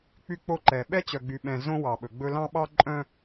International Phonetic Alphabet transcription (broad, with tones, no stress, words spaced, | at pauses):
k͡py˦ k͡po˦ǃɛ˨ ɓɛ˦t͡ɕœ˨ɡ͡by˨ɓɛ̃˨ zõ˦wɑ˨ɓɵ˨ɡ͡bɵ˦ lɑ̃˦ɓɑ˦ǃʼœ̃˦